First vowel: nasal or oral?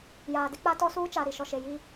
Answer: oral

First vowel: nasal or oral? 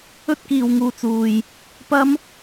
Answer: oral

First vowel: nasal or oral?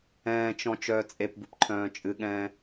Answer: nasal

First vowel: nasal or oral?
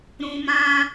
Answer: nasal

